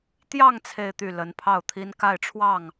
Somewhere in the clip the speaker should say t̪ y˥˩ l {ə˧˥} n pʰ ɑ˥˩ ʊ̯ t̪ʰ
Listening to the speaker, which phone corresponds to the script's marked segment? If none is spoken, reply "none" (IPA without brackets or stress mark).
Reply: ə˧˥